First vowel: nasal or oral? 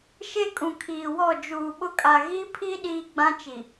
oral